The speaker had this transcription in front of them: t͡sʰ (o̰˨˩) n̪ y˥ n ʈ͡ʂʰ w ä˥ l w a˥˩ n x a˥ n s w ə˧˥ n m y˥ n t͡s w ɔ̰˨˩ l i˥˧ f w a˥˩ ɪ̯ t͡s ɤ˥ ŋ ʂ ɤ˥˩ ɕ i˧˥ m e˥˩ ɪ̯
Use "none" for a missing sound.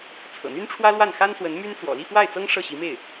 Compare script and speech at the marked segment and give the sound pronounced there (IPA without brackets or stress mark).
ɤ̰˨˩